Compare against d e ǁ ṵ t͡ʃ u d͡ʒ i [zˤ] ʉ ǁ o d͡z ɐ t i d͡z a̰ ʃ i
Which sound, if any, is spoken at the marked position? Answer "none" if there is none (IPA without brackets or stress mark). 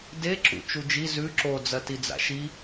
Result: z